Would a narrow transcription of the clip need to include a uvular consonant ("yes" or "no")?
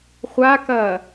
yes